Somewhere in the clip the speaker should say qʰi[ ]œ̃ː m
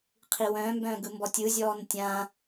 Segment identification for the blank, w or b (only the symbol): w